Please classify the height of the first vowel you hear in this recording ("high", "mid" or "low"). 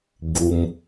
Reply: high